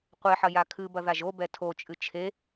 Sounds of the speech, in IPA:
qʷeħɐ jakʰɨbɐ ðaʒobɛ tʰot͡ʃʼɨ t͡ʃʰe

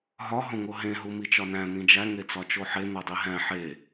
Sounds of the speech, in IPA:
ɦɒ ɦõŋoɦẽ ɦumit͡ʃɒnæ̃ n̪ĩd͡ʒæ ŋet͡sɒt͡ʃoħe n̪odˤiɦæ̃ ħe

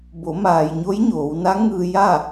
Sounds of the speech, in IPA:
bo˩˧ maː˩jɲo˧˥j ɲoː˩˧wna˧˥ŋɯː˧ ja˥˨

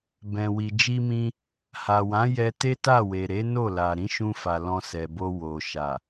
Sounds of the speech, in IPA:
bɛ̃˨wi˨ d͡ʒi˧mĩ˧ | ha˨wã˨˦ jɛ˧te˦ta˦˨we˨ ɾe˨˦no˦˨la˨ ɾĩ˨˦ʃũ˧ fa˨lɔ̃˧sɛ˨bo˧ wo˨ ʃa˨

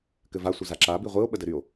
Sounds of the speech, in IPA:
kɘva sʷəzaǁa biʁʷio̯ ɓədɘɾyo̯

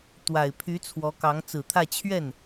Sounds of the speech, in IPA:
t̪wa˨˩ɪ̯pʰy˧˥ t͡sʰwɔ˧˥kɑ˧˥ŋ t͡sɹ̩˨˩t̪ʰä˥˧ t͡ɕʰɥɛ˥˩n

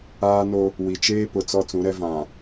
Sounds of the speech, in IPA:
aː˦no˦ | wi˨t͡ʃeː˦pʊ˨ t͡sɔ˦t͡sũ˨˦ɾɛ˦ vã˨

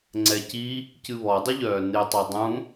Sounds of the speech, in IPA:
ŋ͡ǀɛci | cɨβɔdˤɪʎœː nɪtˤe dˤũ

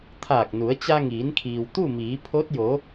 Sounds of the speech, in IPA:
t̪ʰaː˧˩k̚nu˩˧ə̯ t͡ɕa˧ŋiː˩˧nkʰiː˩w t̪u˥˨miː˩˧pʰo˧˥t̚ jo˩˧

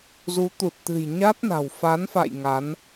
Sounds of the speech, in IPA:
zu˨˦t̪u˨˩t̚t̪ɨ̤˨˩j ɲa˦˥t̚na̤˨˩w fa˨˦nfa̰˧˨j ŋa˨˦n

